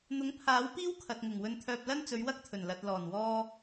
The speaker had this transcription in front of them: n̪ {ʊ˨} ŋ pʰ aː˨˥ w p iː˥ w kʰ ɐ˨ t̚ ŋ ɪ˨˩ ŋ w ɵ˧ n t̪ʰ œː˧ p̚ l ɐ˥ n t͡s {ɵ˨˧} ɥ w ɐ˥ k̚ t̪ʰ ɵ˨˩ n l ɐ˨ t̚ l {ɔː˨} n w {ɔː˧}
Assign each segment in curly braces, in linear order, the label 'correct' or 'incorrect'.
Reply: incorrect: ʊ˨˥, correct, incorrect: ɔː˨˩, correct

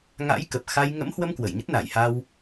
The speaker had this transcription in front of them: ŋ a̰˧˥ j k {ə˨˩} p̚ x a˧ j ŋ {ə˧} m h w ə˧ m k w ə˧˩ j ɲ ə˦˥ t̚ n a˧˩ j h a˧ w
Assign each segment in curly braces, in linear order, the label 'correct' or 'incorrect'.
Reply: correct, incorrect: ə̰˧˥

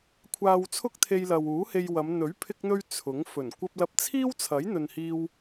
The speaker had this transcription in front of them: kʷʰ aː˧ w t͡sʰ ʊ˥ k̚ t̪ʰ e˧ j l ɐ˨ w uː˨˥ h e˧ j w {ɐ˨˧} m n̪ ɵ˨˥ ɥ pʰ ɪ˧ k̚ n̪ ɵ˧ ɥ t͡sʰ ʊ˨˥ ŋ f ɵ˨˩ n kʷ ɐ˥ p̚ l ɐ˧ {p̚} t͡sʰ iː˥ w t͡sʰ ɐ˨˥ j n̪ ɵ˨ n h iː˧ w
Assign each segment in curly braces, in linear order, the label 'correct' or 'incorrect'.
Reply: correct, correct

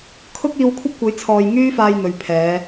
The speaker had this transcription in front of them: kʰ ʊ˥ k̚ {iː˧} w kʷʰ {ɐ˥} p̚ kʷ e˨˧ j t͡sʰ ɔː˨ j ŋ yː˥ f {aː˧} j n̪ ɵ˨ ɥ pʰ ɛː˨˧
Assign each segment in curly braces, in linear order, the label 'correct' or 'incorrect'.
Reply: correct, correct, correct

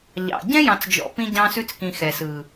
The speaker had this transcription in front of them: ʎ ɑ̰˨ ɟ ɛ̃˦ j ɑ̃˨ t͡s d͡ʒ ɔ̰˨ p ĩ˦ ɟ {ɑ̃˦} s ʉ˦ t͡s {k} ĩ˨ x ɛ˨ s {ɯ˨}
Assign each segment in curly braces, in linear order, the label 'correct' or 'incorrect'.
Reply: correct, correct, correct

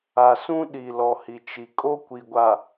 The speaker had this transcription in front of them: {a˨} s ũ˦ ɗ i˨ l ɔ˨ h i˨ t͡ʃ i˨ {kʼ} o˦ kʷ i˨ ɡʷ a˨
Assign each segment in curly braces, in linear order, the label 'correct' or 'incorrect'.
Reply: correct, correct

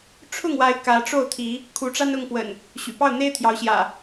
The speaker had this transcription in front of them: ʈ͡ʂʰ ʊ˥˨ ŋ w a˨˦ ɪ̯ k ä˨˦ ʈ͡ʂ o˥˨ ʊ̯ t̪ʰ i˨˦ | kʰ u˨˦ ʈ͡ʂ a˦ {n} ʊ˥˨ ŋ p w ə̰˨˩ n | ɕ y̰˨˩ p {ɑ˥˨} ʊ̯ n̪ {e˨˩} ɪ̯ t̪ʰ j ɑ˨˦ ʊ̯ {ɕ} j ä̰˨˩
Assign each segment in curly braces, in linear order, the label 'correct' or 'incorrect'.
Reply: correct, correct, incorrect: e˦, correct

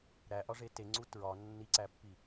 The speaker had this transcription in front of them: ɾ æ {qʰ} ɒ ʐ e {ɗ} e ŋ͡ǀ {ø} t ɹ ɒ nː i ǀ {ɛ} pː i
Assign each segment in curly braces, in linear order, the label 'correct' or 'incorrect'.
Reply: incorrect: ʔ, incorrect: t, incorrect: u, incorrect: æ

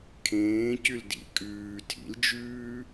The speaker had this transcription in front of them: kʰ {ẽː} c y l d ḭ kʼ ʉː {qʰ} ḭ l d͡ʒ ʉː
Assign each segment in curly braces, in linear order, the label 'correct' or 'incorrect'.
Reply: correct, incorrect: tʰ

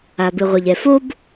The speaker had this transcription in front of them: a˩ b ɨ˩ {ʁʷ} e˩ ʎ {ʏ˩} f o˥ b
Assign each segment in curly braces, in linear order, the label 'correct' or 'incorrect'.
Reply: correct, incorrect: ɛ˩

